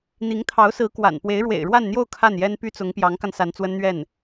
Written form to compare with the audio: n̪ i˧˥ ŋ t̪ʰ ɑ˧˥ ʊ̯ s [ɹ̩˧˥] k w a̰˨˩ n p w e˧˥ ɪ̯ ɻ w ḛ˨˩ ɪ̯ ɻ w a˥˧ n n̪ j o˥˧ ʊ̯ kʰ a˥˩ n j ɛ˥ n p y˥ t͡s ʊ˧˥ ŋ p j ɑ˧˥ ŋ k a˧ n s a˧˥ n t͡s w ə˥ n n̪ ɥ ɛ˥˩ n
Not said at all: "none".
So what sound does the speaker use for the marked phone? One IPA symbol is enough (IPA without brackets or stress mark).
ɹ̩˧˥